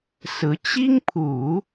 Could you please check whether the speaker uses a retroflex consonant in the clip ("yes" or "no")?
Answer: no